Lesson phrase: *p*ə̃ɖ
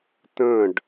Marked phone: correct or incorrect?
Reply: incorrect